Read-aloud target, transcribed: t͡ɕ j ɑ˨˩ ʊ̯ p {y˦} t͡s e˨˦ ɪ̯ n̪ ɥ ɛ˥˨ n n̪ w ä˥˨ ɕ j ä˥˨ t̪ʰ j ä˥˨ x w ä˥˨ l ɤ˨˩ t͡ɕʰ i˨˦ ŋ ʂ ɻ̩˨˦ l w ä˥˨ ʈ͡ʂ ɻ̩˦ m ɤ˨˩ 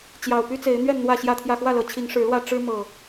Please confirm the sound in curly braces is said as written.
yes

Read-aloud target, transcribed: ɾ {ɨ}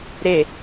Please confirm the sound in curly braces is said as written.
no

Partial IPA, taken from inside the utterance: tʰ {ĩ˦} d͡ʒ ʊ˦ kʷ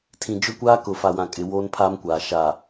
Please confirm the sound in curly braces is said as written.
no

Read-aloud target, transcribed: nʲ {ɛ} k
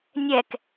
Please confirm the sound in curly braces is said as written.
yes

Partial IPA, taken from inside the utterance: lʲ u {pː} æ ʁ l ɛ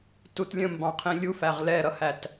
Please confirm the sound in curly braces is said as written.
no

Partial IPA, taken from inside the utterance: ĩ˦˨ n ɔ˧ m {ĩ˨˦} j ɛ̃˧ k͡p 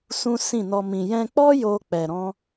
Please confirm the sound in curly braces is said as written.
no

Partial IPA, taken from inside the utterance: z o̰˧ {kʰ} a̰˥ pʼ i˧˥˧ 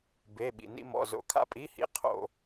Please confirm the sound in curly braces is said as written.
yes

